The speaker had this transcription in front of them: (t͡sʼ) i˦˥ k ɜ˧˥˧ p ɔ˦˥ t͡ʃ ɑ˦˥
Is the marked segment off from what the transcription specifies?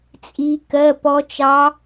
no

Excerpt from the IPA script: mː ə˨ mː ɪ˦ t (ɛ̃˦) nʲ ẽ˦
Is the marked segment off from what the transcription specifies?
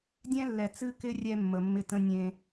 yes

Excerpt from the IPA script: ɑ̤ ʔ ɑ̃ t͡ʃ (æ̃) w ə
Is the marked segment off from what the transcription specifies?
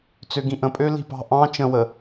yes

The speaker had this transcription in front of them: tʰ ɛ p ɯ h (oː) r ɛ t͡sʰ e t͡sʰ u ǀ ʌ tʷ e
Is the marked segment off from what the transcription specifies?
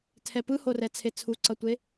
yes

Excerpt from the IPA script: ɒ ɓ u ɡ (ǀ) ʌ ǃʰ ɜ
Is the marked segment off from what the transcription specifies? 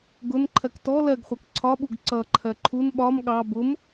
no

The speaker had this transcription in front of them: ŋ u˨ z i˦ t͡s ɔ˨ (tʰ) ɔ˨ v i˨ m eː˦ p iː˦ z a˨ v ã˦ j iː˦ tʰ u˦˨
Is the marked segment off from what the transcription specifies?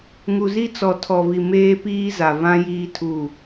no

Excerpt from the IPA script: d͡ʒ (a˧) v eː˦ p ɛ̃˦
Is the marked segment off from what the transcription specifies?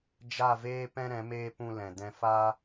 yes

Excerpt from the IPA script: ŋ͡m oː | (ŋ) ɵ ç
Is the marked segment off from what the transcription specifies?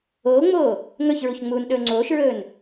no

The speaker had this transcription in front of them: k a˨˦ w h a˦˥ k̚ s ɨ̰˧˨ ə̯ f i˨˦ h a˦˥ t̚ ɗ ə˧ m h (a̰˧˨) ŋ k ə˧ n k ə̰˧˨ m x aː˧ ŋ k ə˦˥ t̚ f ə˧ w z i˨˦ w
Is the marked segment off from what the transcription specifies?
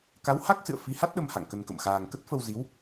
no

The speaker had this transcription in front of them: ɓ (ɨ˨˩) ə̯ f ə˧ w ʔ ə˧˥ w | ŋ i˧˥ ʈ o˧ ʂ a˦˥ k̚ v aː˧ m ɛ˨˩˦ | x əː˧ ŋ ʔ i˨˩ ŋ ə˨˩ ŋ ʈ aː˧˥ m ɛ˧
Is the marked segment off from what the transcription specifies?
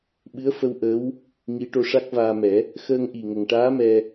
yes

